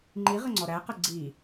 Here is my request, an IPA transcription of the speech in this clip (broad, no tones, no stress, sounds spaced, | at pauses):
ŋ͡ǃ i ʁ ə ŋ͡ǀ ɔ ɾ æ q ə ɡ͡ǀ i